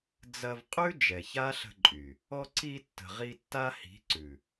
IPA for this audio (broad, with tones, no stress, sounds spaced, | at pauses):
d͡z ɐ˧ v qʼ ʉ˦ d͡ʒ ɛ˨ ç a˦ ɬ ə̤˧ ǃʼ y˨ | ɔ˧ ǀ i˧ tː ə̤˨ ʁ i˧ tː a˦ h i̤˨˦ ǀ ʉ˨